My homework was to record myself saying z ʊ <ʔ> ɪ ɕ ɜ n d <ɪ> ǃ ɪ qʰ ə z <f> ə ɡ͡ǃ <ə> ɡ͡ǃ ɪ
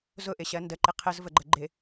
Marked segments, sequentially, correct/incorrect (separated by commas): correct, incorrect, incorrect, correct